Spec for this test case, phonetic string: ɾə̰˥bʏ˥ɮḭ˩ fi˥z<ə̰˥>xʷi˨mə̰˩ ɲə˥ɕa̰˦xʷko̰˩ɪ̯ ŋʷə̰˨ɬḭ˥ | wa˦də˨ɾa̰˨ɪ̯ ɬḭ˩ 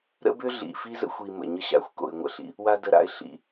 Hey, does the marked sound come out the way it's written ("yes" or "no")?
yes